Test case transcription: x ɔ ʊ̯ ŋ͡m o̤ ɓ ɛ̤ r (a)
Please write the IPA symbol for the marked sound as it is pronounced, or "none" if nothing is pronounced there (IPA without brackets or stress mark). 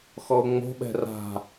a̤